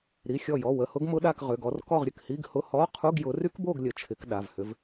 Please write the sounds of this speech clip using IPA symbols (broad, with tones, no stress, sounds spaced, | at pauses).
ɾ i˩˧˩ xʲ ɔ˧˩ j ɔ˩˧˩ w ə˧˩ h ʊ˦˥ ɡ m ʊ˦˥ ɗ a˥˨ k ʁ ʏ˩˧˩ ɡ ɔ˨˦ r k ɔ˥˨ ʁ ɾʲ ə˧˩ k h i˧˥˧ ɡ h ʊ˧˥˧ h ɔ˧˥˧ qʰ u˧˥˧ ɡ j ʊ˨˦ r y˦˥ k b o˥˨ ɡ lʲ ə˧˩ t͡ʃʰ ɪ˨˦ k ɗ a˩˧˩ v h ʏ˨˦ v